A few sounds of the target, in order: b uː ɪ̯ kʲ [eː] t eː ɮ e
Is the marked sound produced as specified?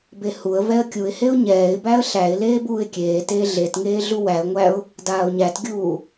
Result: yes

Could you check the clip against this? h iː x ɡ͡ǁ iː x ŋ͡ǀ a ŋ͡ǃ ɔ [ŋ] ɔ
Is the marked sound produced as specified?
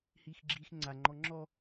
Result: no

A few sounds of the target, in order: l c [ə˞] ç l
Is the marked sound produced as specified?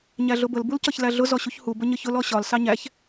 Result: no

